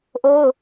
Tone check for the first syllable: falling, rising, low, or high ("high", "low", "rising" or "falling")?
high